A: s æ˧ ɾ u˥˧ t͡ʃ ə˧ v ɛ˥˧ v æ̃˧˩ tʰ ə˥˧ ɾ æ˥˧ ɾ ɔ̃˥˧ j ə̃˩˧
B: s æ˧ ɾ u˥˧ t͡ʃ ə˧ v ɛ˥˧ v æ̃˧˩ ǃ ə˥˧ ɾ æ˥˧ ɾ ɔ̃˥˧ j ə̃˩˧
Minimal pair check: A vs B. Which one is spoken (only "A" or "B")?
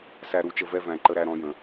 B